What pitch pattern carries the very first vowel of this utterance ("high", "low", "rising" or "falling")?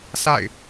falling